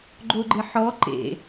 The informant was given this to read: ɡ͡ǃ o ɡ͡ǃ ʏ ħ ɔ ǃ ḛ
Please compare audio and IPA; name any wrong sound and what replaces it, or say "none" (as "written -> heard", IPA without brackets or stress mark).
ʏ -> ɪ